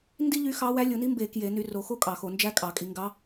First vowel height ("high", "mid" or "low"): high